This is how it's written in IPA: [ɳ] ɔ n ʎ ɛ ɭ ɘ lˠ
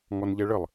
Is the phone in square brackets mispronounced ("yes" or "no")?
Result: yes